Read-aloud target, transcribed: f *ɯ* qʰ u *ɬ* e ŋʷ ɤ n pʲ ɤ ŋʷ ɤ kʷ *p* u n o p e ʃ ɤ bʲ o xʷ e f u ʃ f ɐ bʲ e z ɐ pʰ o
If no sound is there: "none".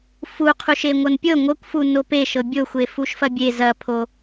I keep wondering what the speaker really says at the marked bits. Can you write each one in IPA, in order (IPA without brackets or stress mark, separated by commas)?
u, ʃ, f